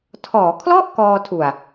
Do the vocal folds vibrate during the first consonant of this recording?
no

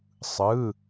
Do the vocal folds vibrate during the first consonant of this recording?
no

